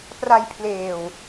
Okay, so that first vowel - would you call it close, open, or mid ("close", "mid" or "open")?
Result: open